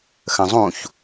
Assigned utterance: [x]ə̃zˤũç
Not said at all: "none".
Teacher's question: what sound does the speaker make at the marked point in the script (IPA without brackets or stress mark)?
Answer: x